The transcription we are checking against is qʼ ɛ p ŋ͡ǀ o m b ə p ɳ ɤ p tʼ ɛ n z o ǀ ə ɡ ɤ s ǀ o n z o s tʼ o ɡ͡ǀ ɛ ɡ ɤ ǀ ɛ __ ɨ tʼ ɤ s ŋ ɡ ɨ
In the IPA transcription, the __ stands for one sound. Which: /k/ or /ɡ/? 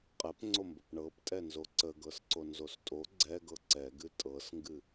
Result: ɡ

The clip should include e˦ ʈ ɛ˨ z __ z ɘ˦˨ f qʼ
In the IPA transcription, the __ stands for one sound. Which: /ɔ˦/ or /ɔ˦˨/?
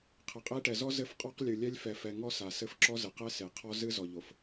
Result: ɔ˦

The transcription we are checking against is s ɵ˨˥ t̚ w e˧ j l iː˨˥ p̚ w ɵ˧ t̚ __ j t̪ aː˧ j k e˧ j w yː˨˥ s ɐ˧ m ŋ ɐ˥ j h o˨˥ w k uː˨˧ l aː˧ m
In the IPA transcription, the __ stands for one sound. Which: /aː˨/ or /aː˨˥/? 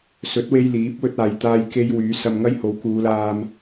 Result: aː˨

